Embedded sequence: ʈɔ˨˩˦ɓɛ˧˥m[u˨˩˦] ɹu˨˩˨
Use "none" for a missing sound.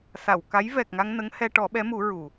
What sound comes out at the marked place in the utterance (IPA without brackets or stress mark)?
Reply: u˨˩˦